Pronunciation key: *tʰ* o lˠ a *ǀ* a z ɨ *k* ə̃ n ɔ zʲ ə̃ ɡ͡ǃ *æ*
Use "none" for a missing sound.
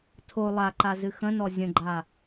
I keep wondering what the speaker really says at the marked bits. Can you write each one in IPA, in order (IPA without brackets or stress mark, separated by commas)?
tʰ, ǃ, x, a